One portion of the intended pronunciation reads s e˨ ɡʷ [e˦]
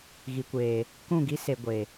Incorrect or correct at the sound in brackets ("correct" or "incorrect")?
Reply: incorrect